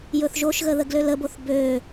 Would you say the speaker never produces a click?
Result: yes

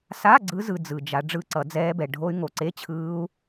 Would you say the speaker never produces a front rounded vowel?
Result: no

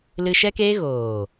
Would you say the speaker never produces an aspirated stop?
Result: yes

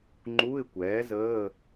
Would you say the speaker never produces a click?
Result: no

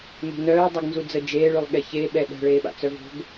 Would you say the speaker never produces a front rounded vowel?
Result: no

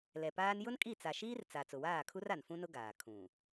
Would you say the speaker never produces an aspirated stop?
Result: no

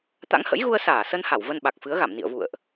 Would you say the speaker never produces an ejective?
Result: yes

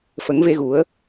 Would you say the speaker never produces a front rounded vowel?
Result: yes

